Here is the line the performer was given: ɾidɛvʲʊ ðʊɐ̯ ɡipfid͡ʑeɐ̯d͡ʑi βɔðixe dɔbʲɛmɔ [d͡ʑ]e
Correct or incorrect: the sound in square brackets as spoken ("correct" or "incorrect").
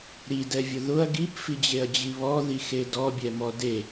incorrect